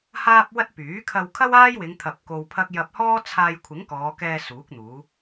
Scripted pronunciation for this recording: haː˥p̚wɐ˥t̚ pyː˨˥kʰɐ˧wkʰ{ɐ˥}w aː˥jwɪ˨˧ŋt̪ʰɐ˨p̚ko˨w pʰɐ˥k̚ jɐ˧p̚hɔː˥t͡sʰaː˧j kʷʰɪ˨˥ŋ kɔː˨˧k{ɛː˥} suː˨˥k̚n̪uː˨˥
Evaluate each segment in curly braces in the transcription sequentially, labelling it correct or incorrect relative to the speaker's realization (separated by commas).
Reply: correct, incorrect